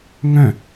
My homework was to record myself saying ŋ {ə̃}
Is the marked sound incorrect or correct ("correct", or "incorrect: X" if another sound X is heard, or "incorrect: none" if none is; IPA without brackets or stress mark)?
incorrect: œ̃